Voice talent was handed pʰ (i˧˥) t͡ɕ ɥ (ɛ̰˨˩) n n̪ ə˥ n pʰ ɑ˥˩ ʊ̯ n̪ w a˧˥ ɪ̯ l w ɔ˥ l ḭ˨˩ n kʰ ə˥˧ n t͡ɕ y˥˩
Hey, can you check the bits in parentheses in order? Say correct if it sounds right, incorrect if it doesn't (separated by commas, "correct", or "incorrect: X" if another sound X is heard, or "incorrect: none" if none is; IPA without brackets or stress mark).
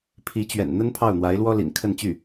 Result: correct, correct